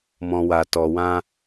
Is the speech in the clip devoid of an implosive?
yes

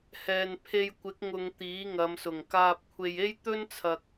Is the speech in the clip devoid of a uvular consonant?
yes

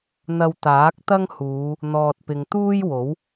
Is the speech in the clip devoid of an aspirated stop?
yes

